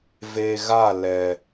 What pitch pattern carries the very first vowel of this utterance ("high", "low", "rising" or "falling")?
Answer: low